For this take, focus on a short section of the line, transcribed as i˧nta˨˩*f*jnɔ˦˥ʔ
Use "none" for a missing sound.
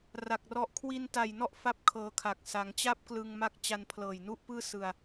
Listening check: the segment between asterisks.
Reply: none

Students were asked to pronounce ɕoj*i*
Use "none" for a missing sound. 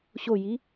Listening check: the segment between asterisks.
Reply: i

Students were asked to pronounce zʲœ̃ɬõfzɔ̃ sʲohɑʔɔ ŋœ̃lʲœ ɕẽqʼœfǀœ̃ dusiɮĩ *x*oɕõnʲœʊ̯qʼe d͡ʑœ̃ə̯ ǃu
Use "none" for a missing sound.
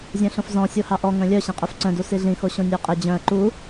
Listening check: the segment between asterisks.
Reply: x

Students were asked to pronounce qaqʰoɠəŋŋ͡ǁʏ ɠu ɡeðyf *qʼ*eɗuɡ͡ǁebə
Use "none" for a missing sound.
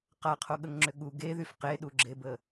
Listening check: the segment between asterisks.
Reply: q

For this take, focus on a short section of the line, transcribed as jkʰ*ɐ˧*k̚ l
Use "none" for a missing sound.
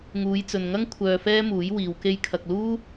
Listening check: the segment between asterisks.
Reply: ɐ˧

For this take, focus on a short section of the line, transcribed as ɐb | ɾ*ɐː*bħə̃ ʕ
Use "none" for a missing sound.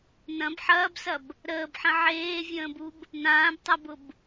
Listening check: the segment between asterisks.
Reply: əː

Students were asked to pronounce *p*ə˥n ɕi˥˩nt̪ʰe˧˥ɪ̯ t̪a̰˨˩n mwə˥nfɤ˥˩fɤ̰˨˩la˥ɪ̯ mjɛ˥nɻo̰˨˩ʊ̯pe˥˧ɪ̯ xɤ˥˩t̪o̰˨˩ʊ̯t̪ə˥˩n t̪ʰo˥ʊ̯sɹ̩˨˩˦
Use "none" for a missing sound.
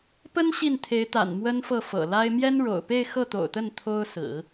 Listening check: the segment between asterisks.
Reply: p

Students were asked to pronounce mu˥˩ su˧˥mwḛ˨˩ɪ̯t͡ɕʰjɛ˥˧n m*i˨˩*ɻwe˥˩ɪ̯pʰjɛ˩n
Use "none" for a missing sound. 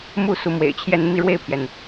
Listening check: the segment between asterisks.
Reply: i˥˧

